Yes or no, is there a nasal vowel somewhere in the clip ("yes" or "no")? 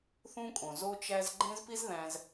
yes